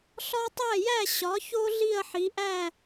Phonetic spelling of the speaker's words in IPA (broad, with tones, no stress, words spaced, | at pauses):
ɬɒ˦tˤæ˥˩jæ˥˩ ɕɒ˩˥ço˦ ɮi˥˩ɐ̯ħi˩˥ʔæ˥˩